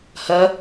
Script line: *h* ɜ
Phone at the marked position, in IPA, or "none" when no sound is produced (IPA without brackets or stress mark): h